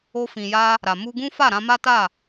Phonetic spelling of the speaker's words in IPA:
o˧ f ĩ˨ j a˧ | ɾ a˨ m u˧ ɡ ũ˦ f a˦˨ ɾ ã˧ m a˦ t a˦˨

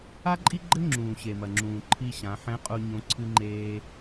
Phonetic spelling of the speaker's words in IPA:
a˥ ǃʼ i˥ ɡ͡ǃ ɘ˥ ŋ͡ǁ ũː˩ ɕ e˩ m ɐ˩ ŋ͡ǁ ũː˩ ǃʰ i˧ ɕ ã˩˧ ħ ɛ̃˧˥ qʼ u˧ ɲ õ˧˥ ǀʰ ɨ˥ ŋ͡ǃ eː˥

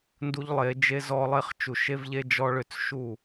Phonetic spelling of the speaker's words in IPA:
n d u˦ ʎ lˠ e˨˦ d͡ʒ e˦ z ɔ˦ lˠ e˦ χ t͡ʃ u˨ ʃ e˦ v ʎ e˦ d͡ʒ ɔ˦ ɭ ʏ˦˨ t͡s ʃ u˦˨

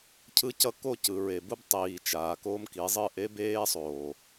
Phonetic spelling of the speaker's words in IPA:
cʰ ɯ˦ c ʌ˦ k o˦˨ c ɯ˨ ɹ e˨ b u˦ b tˤ iː˨ t͡ʃ aː˨ k o˦ m k i˨˦ zˤ ɯ˦˨ ʔ e˦ b eː˦ sˤ oː˨

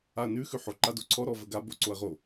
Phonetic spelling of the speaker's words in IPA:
a ɐ̯ n ʉ x ʉ ħ o ǃ a d o ǀʰ ɔ ɾ ɔ v ə ɡ a b o ǀ o ɐ̯ ʁ o

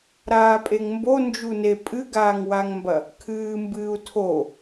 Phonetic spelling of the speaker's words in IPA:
ɾ aː pʼ e ŋ m b o n d͡ʒ u n e pʼ ɨ ɡ aː ŋ w a ŋ m b ɐ | kʰ ɨː m b ɨː u̯ tʰ o

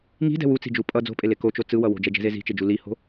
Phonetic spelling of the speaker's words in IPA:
ŋ i̤ d ɛ̤ w u t͡s i̤ d͡ʒ u pʼ ʌ d͡z o̤ pʼ e l e k o t͡ʃ o t͡s ɯ w ʌ w o̤ d͡ʒ ɛ d͡ʒ ɛ̤ z e z i̤ t͡ʃ e d͡ʒ u l i h o̤

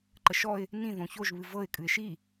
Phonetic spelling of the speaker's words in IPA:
ǃ ə ʃ ɔ ɪ̯ | n ĩ ð õ ç o ʒ β ɨ v ɤ ɪ̯ kʼ ɨ ɪ̯ ʃ i

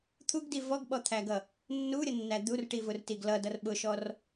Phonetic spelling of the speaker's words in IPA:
t̪ʰ u ɡ d i v ɔ ɡ ɓ ɔ t̪ʰ æ ɡ ʌ | nː u ɾʲ ʌ nː æ d̪ u r ʈ i v ʊ r t i ɡ l ʌ d ʌ r ɓ ʊ ʃ ɔ r

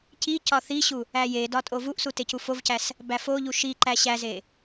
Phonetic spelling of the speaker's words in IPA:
c i c ɒ θ i ɕ u | æ j e d ɒ tʼ o v u ʔ s u t e c u f o v c æ s | b æ f o ʎ u ʃ i ǃ æ ɕ æ z e

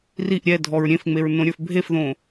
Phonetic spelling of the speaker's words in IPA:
r i ʔ ɾʲ ɛ dʱ ɔ ɹ ɾʲ ẽ f ŋ͡m e ɹ n õ ɾʲ ə˞ f bʱ e f ð õː

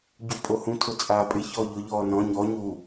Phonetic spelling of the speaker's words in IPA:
ɟ u pʼ o h ũ tʰ ʊ t͡sʼ aː pʼ ɪ ç ɔː ʎ ʊ ʎ ɔː n ɔ̃ ɲ ɔ ɲ u

